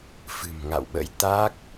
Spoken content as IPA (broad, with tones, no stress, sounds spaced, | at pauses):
f ɨ̤˨˩ m ŋ a̰˧˨ w ɓ ə̰˧˥ j t̪ a˦˥ k̚